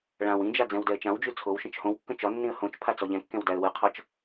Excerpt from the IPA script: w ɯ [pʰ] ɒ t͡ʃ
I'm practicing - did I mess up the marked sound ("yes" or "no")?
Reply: yes